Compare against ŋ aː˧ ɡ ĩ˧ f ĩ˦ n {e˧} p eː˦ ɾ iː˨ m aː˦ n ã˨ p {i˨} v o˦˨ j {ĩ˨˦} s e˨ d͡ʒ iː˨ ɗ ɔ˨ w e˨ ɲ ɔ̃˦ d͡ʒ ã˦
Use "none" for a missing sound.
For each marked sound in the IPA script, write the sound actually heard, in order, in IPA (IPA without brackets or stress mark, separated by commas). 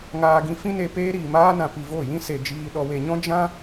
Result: e˧, i˨, ĩ˦